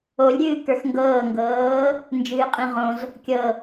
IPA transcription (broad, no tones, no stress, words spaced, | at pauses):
olʲɾʲɨːkə˞x ŋɡɤːŋɡɤː | nd͡ʒɨːqʼĩʁõz | kʲɤ